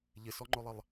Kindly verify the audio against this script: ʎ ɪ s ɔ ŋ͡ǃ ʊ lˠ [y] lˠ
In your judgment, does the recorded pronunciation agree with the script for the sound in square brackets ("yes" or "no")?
no